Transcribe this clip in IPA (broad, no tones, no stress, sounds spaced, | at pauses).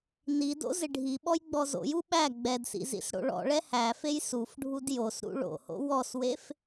n i d o̰ z ɪ ɖʱ i ɓ ɔ j ɡ͡b ɔ z o̰ j u ɓ æ ɡ͡b ɛ d s ḭ z ḭ s ɽ o̰ ɭ ɔ̰ ɭ ɛ h æ f e j s u f ɖʱ u d j o s ɾ ṵ ɭ o̰ h o̰ w ɔ s w e f